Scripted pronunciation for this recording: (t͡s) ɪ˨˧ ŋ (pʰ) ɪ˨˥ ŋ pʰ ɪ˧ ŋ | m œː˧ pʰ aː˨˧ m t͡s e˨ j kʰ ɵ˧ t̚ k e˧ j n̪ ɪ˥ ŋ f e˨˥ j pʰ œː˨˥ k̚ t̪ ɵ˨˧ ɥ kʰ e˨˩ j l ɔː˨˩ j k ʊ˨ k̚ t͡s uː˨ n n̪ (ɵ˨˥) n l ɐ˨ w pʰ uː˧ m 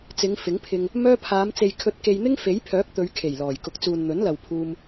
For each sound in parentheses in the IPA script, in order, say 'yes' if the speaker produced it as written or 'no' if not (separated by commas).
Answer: yes, no, yes